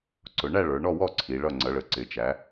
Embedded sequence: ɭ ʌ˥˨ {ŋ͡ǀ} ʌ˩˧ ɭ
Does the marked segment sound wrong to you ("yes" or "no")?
no